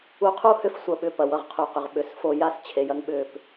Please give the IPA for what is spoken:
u˧ qʰ u˦ h ʏ˦˨ f sʷ ɐ˦ ɓ ʏ˧ p ɐ˨ w ʌ˧ ʁ qʰ u˨ q ʏ˨ ʁ ɓ ʏ˨ s f o˧ j a˦ s t͡ɕʰ e˨ j ɐ˦ ŋ ɓ ʏ˦˨ p

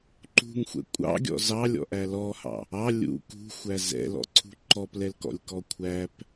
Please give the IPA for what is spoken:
ǃ ṳ ŋ xʷ ɛ̰ kʷʼ ɑ̰ ɡʲ ɔ̰ z ɑ lʲ ɔ̰ ʔ æ l ɔ h ɑ̰ | ɑ lʲ ṵ k ṳ xʷ æ z ɛ̰ l ɔ̰ ǀʰ ṳ ǃ ɔ p l ɛ l k ɔ̰ lʲ k ɔ kʷʰ æ p

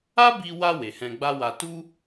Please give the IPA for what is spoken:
a˦ b i˧ w a˧ w e˨ h ɛ̃˧ ɡ͡b a˦ w a˧ t u˦

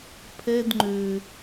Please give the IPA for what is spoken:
pʰ ɛ d ŋ͡ǃ ø

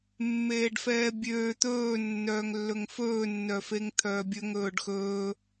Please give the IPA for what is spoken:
mː eː ɖ f ɛː bʲ øː t̪ ɵː nː œː ŋ lː ɵ ŋ f ɵː nː œ f e ŋ t̪ʰ œː bʲ ɵ ŋ ɵː ɖ x ɵː

